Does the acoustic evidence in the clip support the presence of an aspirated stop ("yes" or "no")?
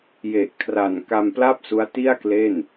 yes